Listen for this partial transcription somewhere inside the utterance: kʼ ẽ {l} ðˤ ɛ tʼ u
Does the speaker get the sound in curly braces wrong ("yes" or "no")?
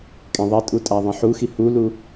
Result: yes